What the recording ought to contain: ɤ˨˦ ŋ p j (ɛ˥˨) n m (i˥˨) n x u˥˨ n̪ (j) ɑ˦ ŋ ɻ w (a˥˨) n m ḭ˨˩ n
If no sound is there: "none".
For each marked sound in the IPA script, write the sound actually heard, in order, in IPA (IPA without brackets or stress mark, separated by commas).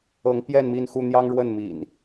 ɛ˥˨, i˥˨, j, ə˥˨